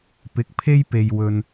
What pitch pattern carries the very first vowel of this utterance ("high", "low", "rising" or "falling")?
rising